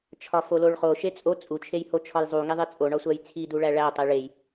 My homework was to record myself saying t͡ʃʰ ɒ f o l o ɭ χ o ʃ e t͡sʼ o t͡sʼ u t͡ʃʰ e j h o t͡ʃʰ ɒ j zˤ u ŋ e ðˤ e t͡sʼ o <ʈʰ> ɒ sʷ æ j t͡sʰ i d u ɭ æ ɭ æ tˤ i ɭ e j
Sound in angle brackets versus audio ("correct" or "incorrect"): incorrect